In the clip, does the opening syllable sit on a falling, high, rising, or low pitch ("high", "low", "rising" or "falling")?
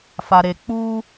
low